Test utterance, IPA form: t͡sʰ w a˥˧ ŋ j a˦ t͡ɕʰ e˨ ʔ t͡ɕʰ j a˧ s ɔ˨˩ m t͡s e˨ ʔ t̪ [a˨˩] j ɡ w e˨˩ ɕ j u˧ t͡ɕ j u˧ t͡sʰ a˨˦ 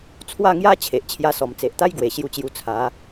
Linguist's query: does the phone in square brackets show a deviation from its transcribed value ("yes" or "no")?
yes